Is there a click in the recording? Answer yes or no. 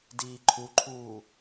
yes